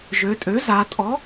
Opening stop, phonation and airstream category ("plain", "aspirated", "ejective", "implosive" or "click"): ejective